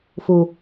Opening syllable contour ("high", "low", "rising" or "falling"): low